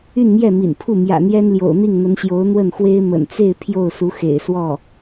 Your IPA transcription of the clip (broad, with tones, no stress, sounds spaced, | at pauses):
y˥˧ n m j ɛ˥˩ m ḭ˨˩ n pʰ u˥˩ m j ä̰˨˩ n̪ j ɛ˥ n l j o̰˨˩ ʊ̯ n̪ i˥˩ ŋ n̪ ə˧˥ n ɕ j o˧˥ ʊ̯ n̪ w ə˥˩ n x w e˥ ɪ̯ m ə̰˨˩ n t͡s e˥˧ ɪ̯ pʰ j o˥˩ ʊ̯ s u˧˥ x ḛ˨˩ ɪ̯ s w ɔ˥˩